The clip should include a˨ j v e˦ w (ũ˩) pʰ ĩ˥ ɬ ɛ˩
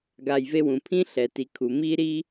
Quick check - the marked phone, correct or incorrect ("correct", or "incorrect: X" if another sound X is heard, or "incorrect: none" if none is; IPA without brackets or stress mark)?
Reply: correct